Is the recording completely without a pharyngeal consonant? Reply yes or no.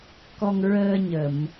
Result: yes